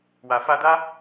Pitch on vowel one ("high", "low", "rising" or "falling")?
low